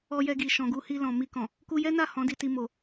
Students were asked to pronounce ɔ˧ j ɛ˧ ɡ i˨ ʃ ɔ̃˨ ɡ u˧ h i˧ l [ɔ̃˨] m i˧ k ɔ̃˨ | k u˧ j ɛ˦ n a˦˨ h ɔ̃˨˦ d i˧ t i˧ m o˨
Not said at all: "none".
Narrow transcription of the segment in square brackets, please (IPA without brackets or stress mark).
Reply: ɔ̃˨